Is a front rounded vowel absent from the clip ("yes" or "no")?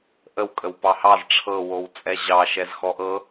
yes